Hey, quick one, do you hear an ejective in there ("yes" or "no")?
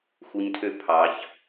no